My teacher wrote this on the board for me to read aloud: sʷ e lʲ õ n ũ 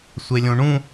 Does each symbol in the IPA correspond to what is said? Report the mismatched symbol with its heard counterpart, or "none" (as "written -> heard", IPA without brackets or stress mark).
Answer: n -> ɳ